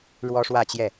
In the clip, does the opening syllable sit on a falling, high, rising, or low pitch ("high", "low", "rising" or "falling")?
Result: high